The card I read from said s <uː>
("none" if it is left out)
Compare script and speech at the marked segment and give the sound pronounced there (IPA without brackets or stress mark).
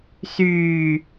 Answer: yː